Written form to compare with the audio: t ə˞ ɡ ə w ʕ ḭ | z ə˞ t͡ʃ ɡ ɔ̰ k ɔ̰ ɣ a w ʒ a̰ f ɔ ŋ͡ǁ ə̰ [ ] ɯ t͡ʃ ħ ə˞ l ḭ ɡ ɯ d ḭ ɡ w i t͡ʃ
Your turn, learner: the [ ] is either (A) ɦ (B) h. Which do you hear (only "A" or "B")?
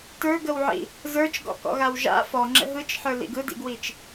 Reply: A